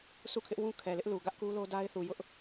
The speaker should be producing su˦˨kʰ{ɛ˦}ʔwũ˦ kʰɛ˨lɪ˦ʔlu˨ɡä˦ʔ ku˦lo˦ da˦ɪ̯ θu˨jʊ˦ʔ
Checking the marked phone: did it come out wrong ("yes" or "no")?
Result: yes